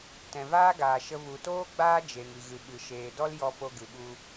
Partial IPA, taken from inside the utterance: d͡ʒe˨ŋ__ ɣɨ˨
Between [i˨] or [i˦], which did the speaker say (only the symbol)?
i˨